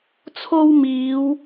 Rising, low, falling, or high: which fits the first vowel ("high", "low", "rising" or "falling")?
high